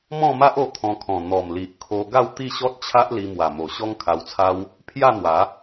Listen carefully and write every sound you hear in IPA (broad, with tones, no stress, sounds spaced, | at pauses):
m ɔ̃˥˧ m a˦ ʔ o˧ t̪ʰ ɔ̃˧ kʰ ɔ̃˨˩ n̪ ɔ˨˩ m l i˨ ʔ kʰ o˧ ɡ a˥˧ w t̪ i˥˧ ɕ ɔ˦ t̚ t͡ɕʰ a˦ ʔ l i˧ m w a˨˩ m o˨˩ ɕ ɔ˦ ŋ kʰ a˧ w t͡sʰ a˦ w | pʰ j a˥˧ n̪ w a˨˦